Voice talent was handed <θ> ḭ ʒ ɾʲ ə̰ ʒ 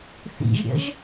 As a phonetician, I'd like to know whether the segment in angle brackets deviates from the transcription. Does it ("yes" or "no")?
no